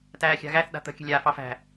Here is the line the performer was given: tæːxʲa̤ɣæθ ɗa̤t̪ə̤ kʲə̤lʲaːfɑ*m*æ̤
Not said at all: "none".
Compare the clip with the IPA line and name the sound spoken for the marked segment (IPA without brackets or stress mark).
f